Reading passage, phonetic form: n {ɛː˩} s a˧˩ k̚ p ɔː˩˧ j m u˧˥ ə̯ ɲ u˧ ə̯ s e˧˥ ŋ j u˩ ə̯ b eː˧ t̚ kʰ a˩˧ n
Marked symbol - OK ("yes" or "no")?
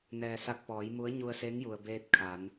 yes